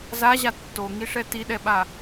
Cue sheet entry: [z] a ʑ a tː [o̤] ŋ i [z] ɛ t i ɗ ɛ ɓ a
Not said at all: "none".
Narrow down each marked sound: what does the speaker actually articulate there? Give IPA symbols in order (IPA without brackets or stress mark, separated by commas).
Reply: z, o, ʂ